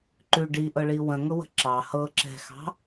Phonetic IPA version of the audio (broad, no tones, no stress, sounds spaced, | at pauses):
ǃ ʉ ɖ i ʔ ɤ ɭ i w ə̃ ŋ ʊ w ə̤ ǁ ɑ h ɤ ǁ ɛ̤ x ɑ̤